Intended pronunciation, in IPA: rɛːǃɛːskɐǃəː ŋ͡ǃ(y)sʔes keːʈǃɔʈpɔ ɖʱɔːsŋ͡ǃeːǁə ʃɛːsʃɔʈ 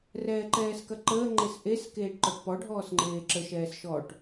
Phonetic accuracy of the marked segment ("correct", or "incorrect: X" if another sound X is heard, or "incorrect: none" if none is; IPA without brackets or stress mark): incorrect: e